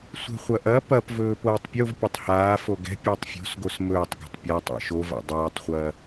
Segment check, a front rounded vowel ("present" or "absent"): absent